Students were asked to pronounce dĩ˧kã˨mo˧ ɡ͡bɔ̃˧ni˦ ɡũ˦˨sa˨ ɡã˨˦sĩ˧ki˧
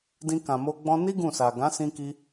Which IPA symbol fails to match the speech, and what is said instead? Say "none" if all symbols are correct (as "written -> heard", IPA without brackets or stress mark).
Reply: none